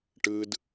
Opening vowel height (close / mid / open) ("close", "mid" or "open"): close